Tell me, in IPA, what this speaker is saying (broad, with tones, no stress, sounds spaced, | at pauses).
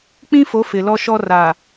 k͡p ĩ˦ f o˨˦ f ɪ˨ l ɔ˦ ʃ ɔ˦ r aː˨